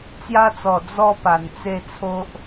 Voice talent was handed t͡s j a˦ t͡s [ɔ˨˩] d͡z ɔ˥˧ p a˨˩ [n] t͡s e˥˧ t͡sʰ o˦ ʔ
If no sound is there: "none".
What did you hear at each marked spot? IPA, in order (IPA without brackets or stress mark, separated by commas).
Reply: ɔ˨˩, n